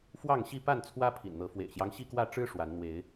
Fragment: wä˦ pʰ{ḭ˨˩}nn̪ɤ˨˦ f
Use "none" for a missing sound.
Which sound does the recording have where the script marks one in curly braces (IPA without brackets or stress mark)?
ḭ˨˩